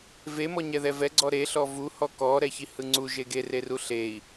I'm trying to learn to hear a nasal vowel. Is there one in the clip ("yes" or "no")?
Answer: no